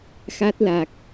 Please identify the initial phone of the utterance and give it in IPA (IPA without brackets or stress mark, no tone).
x